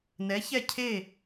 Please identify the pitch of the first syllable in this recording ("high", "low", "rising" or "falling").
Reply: rising